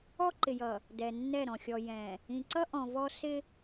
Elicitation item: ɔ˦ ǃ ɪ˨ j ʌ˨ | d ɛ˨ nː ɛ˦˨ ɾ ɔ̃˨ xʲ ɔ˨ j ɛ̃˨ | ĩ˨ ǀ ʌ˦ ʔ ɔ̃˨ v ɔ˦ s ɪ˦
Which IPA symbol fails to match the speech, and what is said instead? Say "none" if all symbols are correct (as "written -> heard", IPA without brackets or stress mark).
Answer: none